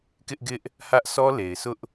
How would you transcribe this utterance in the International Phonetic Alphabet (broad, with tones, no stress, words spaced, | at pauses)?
kɪ˦ʔɡɪ˦ʔ | hä˦ʔ sɔ˦le˨ɪ̯sʊ˦ʔ